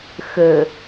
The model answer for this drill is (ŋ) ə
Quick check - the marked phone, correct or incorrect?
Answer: incorrect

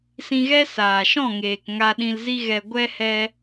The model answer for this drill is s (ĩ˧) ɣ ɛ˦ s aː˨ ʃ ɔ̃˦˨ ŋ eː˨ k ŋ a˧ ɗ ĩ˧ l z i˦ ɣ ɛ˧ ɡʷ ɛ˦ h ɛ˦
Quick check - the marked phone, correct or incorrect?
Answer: correct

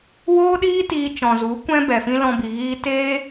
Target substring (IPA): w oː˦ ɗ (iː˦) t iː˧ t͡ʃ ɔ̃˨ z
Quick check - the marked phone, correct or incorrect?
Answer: correct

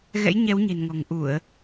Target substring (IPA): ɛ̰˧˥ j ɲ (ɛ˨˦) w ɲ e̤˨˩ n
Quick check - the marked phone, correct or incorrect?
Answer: correct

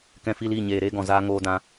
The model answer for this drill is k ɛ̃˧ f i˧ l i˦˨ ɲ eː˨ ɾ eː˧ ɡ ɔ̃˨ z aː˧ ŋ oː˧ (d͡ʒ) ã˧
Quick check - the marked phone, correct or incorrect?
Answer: incorrect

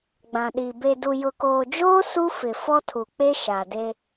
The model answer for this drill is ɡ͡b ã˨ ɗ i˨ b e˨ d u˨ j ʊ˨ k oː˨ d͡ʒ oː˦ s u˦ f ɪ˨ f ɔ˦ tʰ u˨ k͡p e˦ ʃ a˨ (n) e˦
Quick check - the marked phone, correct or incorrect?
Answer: incorrect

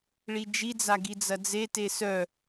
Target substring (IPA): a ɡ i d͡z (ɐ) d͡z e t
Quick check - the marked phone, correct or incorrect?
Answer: correct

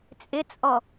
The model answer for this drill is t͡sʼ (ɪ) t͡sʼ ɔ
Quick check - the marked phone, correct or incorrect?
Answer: correct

